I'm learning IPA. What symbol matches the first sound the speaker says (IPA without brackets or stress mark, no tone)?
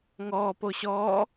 ŋ